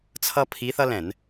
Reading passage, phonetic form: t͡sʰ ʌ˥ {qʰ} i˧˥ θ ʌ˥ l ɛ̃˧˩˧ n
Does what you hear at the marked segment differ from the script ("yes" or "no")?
yes